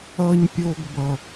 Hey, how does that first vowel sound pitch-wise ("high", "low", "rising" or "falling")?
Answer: low